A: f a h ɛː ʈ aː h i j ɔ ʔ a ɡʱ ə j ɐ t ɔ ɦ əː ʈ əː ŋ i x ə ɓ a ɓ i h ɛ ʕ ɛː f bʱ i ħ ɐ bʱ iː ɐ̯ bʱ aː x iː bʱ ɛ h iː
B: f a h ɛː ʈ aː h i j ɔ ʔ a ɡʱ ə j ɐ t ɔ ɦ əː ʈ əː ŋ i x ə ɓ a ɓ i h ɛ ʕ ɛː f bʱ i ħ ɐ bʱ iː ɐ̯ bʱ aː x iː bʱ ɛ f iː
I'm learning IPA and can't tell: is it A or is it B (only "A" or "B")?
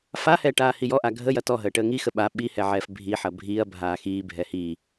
A